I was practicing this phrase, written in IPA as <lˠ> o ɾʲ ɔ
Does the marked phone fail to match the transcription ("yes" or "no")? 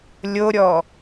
yes